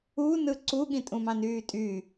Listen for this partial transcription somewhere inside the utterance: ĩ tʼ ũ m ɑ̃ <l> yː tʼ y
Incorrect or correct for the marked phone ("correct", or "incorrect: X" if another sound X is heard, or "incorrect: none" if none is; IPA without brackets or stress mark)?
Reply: incorrect: n